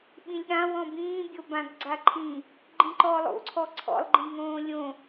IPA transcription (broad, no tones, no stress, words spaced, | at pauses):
ɓĩlʲɠã wɔ̃bĩː bʲobãɡɡ͡ǀaǃʰĩ | ɡ͡ǃĩǃɔlˠo̰ ǀʰɔǀʰɔ̰lˠ ɡ͡ǃĩŋõːlʲõ